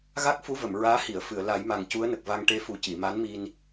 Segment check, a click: absent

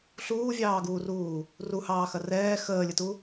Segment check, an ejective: absent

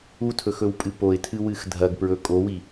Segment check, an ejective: present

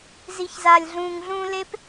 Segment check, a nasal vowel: present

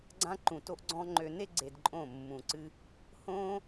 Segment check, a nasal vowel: present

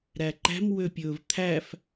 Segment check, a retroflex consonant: absent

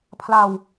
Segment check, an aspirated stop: present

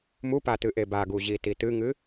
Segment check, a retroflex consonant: absent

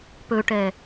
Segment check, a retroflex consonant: present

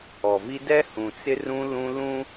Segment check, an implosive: absent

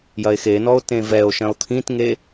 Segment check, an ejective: absent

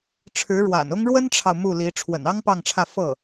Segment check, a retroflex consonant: present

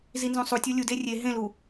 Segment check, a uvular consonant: absent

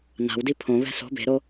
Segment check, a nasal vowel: present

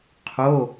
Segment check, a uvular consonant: present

